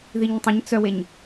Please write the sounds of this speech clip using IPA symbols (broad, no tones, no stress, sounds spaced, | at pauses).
ð i ɲ tˤ ə̃ ɲ t͡s œ w e ɲ